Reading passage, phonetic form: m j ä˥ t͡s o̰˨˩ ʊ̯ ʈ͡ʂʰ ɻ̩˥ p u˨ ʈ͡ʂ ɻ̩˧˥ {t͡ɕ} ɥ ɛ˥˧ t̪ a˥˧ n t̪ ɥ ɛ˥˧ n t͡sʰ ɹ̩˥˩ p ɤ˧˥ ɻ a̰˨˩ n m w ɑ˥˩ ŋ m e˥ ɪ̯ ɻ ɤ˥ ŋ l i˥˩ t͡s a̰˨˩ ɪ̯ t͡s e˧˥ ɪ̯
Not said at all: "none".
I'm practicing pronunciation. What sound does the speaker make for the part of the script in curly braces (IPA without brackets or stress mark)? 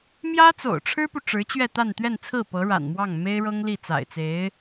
t͡ɕ